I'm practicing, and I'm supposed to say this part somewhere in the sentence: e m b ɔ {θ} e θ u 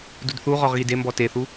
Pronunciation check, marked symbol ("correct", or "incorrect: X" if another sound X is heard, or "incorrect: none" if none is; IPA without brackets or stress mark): incorrect: t